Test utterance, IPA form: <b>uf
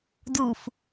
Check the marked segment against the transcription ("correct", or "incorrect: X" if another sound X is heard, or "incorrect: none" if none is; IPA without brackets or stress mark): incorrect: d